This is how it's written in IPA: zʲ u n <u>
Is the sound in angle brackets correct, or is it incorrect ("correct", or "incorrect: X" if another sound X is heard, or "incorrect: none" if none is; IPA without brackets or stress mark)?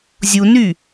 incorrect: y